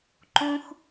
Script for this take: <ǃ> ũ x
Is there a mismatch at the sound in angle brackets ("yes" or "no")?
no